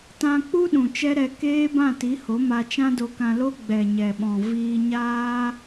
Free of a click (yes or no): yes